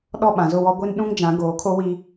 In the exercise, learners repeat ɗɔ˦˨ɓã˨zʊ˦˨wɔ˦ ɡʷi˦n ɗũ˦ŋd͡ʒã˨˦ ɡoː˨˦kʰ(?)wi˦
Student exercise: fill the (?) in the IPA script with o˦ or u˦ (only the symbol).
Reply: o˦